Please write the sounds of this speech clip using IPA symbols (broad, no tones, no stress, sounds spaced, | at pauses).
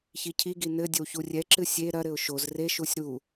ç i cʰ i ɡ i n ɘ dʲ ɘ w ç u rʲ ɛ ǁ ɨ sʲ e ɾ ɐ ɾ ɘ ʊ̯ ʃ o z r e ʃ u sʲ ɾ u